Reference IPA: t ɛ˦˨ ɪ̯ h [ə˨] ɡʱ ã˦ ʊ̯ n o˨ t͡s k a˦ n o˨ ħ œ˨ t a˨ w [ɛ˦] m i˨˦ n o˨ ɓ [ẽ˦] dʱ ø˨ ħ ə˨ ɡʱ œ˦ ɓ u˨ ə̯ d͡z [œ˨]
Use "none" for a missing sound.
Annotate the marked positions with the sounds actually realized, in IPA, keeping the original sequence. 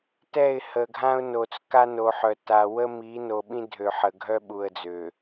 ə˨, ə˦, ĩ˦, ø˨

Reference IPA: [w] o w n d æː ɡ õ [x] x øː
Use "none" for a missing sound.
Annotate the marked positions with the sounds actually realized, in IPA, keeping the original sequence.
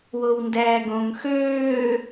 w, ŋ

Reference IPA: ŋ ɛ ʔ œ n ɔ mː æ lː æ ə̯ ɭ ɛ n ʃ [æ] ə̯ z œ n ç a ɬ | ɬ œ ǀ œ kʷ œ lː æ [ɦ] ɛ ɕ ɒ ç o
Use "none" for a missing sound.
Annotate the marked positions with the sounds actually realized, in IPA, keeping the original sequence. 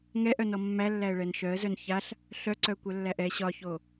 œ, ʔ

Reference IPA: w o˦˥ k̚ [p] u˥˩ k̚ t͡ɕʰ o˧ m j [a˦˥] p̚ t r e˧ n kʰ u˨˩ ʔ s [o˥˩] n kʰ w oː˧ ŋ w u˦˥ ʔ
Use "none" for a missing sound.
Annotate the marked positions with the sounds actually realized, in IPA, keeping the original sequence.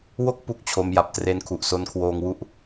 p, a˨˩, o˧

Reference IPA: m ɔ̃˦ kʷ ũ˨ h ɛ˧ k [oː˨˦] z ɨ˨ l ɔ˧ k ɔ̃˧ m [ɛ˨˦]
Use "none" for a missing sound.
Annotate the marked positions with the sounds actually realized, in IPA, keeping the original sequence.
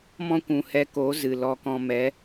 oː˨˦, ɛ˨˦

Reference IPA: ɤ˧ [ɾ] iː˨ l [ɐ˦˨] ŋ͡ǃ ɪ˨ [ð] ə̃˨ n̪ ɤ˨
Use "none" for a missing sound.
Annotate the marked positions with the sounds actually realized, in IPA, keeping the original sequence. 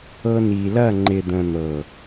n, ɐ˦˨, d̪

